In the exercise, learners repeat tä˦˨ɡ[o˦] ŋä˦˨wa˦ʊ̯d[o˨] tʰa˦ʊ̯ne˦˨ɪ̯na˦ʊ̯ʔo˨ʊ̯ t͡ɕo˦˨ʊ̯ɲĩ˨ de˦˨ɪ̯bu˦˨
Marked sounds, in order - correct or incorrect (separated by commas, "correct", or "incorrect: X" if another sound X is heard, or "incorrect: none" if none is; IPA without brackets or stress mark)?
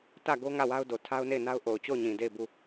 correct, correct